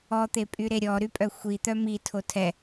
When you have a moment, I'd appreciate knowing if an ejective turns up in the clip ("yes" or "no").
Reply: yes